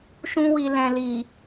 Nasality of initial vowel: nasal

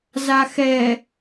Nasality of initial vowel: oral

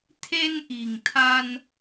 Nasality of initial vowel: oral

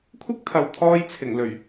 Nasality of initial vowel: oral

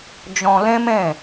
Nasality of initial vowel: nasal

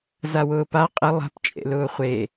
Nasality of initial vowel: oral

